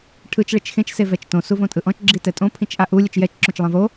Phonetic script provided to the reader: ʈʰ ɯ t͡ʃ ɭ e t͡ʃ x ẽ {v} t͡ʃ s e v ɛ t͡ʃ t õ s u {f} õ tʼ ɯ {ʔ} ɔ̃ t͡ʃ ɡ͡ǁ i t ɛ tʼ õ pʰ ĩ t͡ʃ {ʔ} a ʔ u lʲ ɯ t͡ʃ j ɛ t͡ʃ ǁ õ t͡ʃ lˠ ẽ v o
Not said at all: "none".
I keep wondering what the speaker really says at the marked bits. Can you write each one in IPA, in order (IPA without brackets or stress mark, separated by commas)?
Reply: none, v, ʔ, ʔ